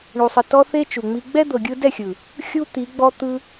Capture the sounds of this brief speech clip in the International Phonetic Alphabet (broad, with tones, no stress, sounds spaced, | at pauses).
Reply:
ɳ u˨ sˤ ɯ˨ t ɔ˧ θ e˦ t͡ʃ u˨ ŋ͡m i˧ ɡ͡b ɛ˦ d̪ ɤ˨ ɡʲ ɯ˧ d ɛ˦˨ xʲ ɯ˨ | xʲ u˦ t̪ i˨˦ ɡ͡b ɔ˦ t̪ ɯ˦